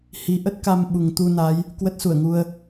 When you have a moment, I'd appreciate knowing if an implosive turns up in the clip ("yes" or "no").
yes